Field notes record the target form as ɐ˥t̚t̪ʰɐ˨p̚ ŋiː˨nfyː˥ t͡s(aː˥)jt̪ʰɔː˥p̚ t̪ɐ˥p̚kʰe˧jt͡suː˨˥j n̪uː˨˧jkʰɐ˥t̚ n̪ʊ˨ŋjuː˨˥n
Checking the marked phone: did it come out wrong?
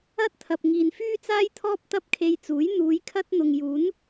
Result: no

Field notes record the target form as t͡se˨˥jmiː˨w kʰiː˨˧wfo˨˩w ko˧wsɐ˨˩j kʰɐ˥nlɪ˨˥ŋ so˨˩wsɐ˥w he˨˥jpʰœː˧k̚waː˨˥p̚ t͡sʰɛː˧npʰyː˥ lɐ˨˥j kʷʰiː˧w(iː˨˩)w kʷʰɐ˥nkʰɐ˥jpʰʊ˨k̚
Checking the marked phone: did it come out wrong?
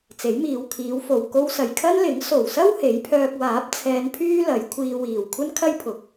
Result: no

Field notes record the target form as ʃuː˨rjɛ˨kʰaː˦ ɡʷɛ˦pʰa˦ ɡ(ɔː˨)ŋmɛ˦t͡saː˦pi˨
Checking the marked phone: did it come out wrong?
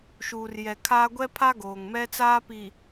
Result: yes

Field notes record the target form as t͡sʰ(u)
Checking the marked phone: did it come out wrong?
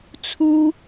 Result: no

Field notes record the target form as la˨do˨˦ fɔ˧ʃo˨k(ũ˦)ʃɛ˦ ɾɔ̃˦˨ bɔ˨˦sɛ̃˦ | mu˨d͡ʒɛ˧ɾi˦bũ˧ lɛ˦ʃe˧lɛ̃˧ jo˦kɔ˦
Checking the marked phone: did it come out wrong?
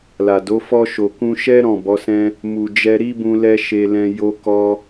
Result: yes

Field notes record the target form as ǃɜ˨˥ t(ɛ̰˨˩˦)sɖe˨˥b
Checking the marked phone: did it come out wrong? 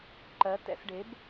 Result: no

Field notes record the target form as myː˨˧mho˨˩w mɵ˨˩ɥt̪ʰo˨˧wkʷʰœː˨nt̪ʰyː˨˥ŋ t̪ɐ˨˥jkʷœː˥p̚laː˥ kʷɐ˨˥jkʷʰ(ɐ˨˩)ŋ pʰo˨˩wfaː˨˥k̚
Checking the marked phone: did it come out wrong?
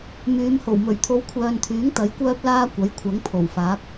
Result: yes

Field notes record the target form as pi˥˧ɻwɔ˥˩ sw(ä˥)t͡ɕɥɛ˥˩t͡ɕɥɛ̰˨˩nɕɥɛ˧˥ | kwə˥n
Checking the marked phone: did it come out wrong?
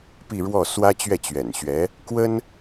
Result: no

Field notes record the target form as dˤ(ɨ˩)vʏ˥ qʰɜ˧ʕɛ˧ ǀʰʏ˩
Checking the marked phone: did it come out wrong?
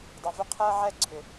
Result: no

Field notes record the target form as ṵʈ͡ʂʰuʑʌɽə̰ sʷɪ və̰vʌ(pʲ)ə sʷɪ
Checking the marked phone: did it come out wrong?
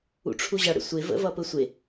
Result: yes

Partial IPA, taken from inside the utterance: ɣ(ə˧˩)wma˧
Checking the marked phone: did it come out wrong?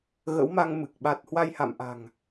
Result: yes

